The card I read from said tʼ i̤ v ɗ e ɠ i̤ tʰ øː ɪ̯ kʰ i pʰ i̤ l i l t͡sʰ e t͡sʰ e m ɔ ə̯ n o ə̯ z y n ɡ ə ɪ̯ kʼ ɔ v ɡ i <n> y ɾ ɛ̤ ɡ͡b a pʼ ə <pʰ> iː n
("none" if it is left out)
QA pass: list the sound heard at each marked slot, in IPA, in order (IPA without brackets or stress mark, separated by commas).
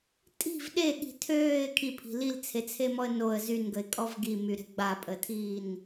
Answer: m, tʰ